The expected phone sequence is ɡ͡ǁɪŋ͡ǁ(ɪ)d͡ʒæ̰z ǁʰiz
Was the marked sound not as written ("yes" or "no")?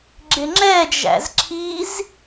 yes